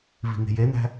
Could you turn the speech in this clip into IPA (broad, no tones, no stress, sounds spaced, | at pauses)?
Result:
v i̤ ŋ e̤ j e n æ̤